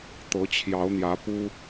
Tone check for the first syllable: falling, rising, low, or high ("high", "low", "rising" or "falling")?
rising